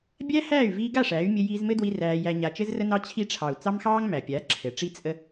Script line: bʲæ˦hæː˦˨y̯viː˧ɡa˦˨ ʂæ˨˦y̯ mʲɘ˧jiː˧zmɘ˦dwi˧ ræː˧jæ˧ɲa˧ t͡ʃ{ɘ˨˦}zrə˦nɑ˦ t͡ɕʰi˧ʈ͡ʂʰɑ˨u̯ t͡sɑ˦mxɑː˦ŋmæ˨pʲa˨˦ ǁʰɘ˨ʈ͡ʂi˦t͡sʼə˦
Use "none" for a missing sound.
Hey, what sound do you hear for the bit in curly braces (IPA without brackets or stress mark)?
ɘ˦